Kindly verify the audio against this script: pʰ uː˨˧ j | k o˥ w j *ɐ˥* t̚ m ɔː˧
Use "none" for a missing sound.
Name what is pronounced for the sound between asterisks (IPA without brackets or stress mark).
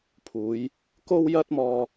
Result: ɐ˥